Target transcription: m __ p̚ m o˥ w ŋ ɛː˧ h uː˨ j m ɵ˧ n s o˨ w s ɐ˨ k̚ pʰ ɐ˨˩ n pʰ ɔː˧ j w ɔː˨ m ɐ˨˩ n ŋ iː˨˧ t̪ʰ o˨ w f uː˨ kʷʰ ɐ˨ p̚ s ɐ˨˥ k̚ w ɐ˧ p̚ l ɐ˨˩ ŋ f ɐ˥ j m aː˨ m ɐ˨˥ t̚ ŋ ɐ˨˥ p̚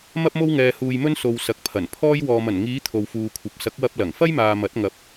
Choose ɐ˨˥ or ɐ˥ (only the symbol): ɐ˥